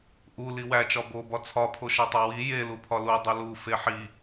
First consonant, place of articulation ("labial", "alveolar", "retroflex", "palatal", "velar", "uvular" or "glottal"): glottal